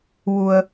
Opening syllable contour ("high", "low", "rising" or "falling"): low